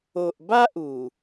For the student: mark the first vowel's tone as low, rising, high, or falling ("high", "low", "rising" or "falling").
low